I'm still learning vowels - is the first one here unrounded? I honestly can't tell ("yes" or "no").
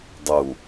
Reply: no